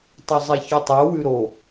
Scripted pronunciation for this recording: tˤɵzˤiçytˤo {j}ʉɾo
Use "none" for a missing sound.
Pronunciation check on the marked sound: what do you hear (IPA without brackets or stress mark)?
w